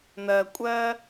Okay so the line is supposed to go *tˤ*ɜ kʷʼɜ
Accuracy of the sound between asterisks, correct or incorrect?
incorrect